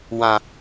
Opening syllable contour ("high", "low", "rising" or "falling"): low